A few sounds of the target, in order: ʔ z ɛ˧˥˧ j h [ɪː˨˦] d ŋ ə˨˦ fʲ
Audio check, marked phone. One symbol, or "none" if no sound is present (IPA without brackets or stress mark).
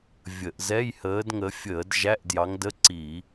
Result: əː˨˦